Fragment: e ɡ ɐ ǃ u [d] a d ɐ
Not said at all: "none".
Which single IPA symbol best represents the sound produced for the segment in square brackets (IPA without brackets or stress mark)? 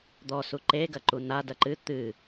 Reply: n